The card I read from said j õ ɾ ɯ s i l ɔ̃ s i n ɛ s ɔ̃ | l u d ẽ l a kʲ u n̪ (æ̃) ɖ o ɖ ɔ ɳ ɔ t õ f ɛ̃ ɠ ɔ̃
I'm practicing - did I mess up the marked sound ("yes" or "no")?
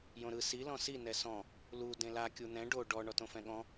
yes